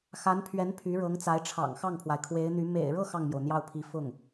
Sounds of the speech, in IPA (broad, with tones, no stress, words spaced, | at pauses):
xa˧˥npʰɥɛ˧˥n pʰy˧˥ɻɤ˧˥ŋt͡sa˧˥ɪ̯ʈ͡ʂʰɑ̰˨˩ŋ xɑ˥˩ŋpʰwa˩ɪ̯kʰwe˧˥ɪ̯n̪y˧˥ mḛ˨˩ɪ̯ɻɤ˥˧ xɑ˥˩ŋmjo˩ʊ̯n̪jɑ˥˩ʊ̯pʰi˧˥ fʊ˥˩ŋ